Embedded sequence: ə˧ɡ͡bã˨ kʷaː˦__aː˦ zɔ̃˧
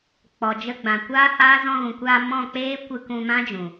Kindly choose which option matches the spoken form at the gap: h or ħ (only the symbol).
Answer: h